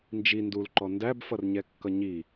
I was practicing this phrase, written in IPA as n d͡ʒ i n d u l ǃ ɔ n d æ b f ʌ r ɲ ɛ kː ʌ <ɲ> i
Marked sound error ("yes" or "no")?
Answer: no